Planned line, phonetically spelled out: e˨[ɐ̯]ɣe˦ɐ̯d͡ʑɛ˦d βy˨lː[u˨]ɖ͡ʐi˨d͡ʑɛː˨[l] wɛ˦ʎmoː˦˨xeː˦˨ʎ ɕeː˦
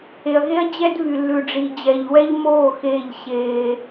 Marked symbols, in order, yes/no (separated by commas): yes, no, no